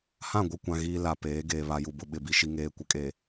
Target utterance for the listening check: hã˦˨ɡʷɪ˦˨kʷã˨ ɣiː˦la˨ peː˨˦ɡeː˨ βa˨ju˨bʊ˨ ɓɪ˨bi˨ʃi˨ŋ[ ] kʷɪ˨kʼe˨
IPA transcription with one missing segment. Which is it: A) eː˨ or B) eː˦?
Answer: A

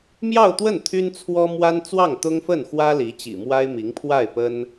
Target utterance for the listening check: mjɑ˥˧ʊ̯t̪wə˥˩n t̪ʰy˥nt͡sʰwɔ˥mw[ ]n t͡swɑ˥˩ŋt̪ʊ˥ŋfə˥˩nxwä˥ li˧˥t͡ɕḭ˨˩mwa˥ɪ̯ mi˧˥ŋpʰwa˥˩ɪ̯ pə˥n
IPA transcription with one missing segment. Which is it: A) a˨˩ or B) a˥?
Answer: B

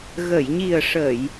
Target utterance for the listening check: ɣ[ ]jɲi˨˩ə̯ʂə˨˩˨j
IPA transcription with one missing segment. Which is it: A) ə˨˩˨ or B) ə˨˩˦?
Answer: A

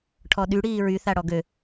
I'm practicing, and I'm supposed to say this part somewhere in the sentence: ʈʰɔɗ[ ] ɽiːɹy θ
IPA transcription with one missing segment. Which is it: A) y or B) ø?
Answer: A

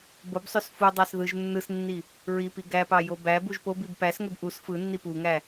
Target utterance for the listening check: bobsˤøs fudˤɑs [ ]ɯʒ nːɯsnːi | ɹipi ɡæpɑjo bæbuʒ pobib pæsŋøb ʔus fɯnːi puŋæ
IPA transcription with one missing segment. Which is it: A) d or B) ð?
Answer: B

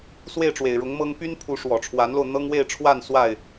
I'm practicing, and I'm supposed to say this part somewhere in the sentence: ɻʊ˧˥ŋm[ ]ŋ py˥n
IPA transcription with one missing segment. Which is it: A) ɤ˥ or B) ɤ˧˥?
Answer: A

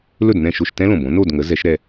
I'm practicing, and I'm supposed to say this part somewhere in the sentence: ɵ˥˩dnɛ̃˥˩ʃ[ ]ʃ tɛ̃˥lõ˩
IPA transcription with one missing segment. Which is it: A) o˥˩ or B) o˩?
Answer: A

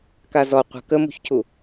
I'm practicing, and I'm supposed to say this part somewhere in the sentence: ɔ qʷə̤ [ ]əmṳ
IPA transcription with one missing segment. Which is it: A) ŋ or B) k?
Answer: B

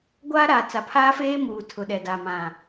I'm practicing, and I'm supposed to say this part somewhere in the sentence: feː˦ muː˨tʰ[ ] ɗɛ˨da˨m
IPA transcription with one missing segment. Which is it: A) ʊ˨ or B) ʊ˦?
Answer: A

